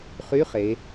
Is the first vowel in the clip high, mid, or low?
high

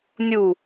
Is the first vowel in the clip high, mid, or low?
high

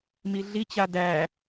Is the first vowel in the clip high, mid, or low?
high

